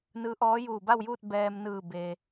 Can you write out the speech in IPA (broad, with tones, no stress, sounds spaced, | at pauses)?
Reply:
n ɯː˧˥ ʔ ɔː˧˥ j uː˧˩ b a˥˨ w j uː˥˨ t̚ b ɛː˧ m n ɯː˧˩ b e˩